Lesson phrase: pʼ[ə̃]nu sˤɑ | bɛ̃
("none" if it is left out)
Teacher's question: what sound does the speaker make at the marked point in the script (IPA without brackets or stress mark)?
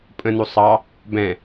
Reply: ə̃